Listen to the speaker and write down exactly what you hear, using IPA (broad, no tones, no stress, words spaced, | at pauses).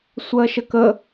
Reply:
sʷɜʃəkə